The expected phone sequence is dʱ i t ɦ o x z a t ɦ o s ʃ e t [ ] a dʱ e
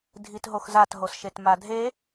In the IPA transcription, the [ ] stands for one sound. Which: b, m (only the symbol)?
m